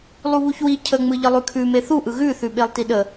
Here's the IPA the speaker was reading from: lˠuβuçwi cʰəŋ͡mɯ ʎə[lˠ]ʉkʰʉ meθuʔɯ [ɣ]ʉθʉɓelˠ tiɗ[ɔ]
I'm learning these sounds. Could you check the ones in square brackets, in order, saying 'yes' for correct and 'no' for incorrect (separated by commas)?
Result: yes, yes, no